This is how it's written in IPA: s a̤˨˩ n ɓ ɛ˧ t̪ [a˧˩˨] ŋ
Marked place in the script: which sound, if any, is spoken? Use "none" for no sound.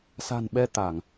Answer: a˧˩˨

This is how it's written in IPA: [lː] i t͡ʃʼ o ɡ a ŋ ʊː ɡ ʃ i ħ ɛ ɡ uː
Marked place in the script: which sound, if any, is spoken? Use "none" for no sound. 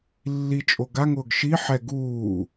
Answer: lː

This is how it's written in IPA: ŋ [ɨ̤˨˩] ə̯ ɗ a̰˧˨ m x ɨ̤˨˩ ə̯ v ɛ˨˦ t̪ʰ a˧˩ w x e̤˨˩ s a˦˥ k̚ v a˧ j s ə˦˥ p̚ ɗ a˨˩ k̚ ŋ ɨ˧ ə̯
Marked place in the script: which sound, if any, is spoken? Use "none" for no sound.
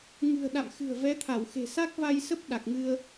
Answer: ɨ̤˨˩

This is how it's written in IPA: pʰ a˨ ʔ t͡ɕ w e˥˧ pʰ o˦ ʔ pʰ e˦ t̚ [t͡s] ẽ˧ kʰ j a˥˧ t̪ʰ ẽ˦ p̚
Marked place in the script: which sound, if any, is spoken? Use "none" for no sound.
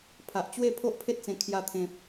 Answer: t͡s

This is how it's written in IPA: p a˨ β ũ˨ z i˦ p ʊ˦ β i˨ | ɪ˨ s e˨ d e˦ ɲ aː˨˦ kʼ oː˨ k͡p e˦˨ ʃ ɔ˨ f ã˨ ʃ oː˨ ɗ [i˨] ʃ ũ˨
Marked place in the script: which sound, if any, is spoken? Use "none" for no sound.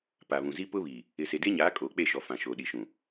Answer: i˨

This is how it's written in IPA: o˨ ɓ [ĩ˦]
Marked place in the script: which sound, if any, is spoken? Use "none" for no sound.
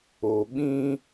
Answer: ĩ˦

